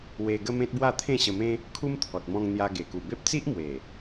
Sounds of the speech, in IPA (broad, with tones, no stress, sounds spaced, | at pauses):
w e˧ ɡ ə˦ m ẽ˦ t̚ b w a˥˧ t̪ʰ ẽ˥˧ ɕ ə˧ m ẽ˦ | kʰ u˦ m t̪ʰ ɔ˨ t̚ m ɔ̃˧ ŋ n̪ j a˧ ɡ e˨˩ k u˨˩ b e˦ p̚ t͡s i˦ ʔ m w e˨˩